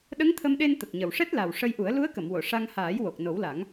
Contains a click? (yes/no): no